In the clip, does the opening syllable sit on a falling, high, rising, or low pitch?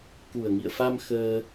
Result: low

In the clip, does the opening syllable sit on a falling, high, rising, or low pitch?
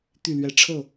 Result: falling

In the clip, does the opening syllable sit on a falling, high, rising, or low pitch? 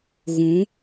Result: rising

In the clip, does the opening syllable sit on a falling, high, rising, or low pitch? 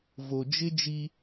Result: low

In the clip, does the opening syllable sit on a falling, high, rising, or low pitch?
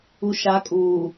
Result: low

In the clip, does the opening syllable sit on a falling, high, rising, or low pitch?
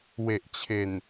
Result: low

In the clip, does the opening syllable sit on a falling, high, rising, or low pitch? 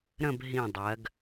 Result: falling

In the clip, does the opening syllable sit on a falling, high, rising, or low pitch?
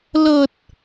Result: low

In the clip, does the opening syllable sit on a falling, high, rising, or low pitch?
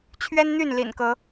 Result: high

